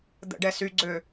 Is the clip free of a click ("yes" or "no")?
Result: no